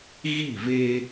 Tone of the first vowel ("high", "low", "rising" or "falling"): falling